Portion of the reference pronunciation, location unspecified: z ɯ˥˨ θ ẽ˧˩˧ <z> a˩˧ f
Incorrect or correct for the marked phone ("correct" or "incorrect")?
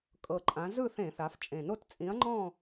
incorrect